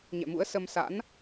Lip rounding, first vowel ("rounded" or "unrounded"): unrounded